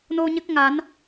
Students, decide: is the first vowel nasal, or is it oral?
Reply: oral